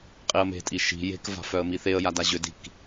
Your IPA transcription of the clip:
qʼ i ə̯ m e̤ tʼ i ʃ i̤ j e̤ k v a̤ f œ ə̯ m i θ e ə̯ j a d a ʑ ʏ d i̤ k

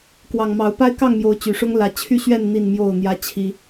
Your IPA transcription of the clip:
k w ɑ˨˩ ŋ m ɑ˨˦ ʊ̯ p a˦ ɪ̯ k ɑ˥˨ ŋ m j o˨˦ ʊ̯ t͡ɕ y˨˩ ʂ ʊ˦ ŋ l ä˨˦ t͡ɕʰ y˥˨ ɕ ɥ ɛ˥˨ n n̪ i˥˨ n m j o˥˨ ʊ̯ n̪ j ä˦ t͡ɕʰ i˦

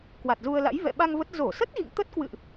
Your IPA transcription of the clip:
k w a˨˩ t̚ z u˧ ə̯ l a̰˧˥ j v ɛ̰˧˨ ɓ a˧ ŋ v ə˦˥ t̚ z o˧˩ s ə˦˥ t̚ ɣ ḭ˧˨ ŋ t̪ ə˦˥ t̚ k w ɨ̰˧˨ ʔ

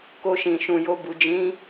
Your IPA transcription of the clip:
k o˧ ʃ ĩ˨ ʃ ũ˨ j o˧ b u˨ d͡ʒ ĩ˨˦

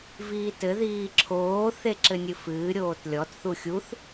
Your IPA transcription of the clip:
v iː t ɘ ð iː ǁʰ oː θ e ǁ ɘ nʲ ɨ f ɨː ɾʲ oː t lʲ ɔ t θ u xʲ u θ

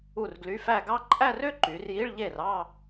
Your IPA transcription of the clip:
u˥˩ r ɡ l y˧˥˧ f æ˥˧ ɡ ɑ˥ ǃʼ æ˥˧ r ø˥ ǃ y˩˧ r j i˧˥˧ ɭ ʎ e˥˩ r ɑ˥˧

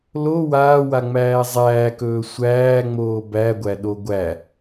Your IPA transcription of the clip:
l o w aː w a ŋ͡m æː zˤ æː k ɵː sʷ æː ŋ͡m oː b æ ɡʷ æ ɗ o ɡʷ æ

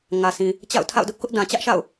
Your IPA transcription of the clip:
ŋ ä˨ sʰ ĩ˨ | t͡ɕ a̰˦˨ ʊ̯ tʰ a̰˦˨ ʊ̯ d ʊ˦ ʔ k ʊ˦ ʔ d ã˨ t͡ɕ ä˦ ʔ ʃ a̰˦˨ ʊ̯

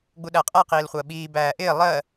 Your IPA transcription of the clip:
ɡ͡b u ɗ æ qʼ æ q iː l χʷ ɜ ɓ iː b æː ʔ ɪː lˠ ɜ

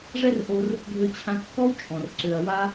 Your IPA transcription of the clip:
ʐ ɛ˦ r ʔ o˧ r | ɡʱ ø˧ t͡ɕʰ ã˧ kː ɔ˦ w t͡ʃʼ ɔ̃˨ r ǀ ø˨ ɐ̯ w a˦

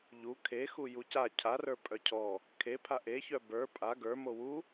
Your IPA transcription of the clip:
ʎ u kʰ e x u j u c a cʰ a r ə˞ pʼ œ cʰ ɔ | kʰ e pʰ a ʔ e ç œ b ə˞ pʼ a ɡ ə˞ m o w u

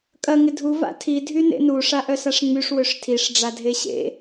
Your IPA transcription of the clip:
kʼ ɐ ŋ ɪ dʱ u v a̰ tʰ i dʱ y n ḛ n u ʂ a ʔ œ s a ʂ ŋ͡m y ʂ w ø ʂ tʰ i ʂ ɖ͡ʐ a dʱ e ɕ ḛ

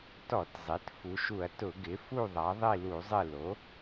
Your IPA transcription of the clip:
t ɔ˧˩˧ t zˤ i˩˥ t f u˩˧ ʃ u˧˩˧ ɐ̯ t ʊ˧˩˧ ɡ ɪ˩˥ f u˦˨ ðˤ a˩˧ ðˤ i˦˨ l u˧˩˧ zˤ ɪ˦˨ l o˩˥

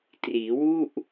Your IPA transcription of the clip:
t r iː˩˦ w u˥˩ ʔ

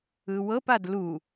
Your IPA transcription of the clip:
ɯ w ɤ p a d l u

